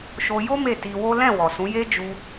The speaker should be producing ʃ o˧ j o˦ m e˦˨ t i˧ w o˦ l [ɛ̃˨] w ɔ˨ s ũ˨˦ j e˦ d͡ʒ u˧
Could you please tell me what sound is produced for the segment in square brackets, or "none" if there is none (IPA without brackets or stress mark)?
ɛ̃˦˨